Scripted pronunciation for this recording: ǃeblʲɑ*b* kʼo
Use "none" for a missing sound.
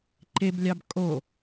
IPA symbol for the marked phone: b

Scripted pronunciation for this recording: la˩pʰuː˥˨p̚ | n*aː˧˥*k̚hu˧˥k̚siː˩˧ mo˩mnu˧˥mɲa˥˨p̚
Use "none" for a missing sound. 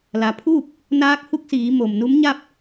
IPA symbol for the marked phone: aː˧˥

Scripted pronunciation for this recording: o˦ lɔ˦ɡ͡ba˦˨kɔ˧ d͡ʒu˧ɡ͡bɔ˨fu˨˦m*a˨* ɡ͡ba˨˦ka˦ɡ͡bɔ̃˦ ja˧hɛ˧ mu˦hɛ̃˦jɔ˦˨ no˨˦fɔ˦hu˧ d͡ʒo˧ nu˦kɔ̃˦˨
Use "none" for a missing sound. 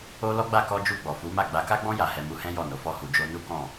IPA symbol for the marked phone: a˦˨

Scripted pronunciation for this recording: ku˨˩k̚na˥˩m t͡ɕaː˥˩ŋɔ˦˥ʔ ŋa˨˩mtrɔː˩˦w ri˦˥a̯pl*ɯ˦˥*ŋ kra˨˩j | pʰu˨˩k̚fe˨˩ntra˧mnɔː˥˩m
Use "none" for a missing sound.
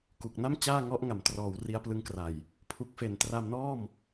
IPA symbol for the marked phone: ɯ˦˥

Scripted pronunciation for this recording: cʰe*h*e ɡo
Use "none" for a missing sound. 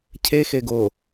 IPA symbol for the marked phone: x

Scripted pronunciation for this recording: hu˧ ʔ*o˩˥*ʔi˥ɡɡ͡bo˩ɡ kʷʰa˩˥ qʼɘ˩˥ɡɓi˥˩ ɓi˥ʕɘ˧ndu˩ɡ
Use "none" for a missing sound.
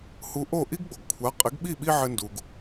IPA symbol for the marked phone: o˥˩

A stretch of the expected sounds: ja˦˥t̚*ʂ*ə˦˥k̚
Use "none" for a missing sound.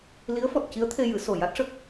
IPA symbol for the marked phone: ʂ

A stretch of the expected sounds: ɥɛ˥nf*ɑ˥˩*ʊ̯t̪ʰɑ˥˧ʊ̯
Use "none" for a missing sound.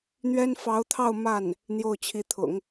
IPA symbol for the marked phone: ɑ˧˥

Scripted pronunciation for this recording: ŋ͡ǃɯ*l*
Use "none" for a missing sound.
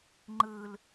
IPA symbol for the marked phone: l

